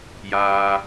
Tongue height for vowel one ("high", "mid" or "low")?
low